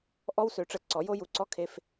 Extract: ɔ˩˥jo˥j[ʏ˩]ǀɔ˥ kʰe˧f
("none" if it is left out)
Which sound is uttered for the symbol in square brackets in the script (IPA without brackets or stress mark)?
u˩